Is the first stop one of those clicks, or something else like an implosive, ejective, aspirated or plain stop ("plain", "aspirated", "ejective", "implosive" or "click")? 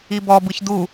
plain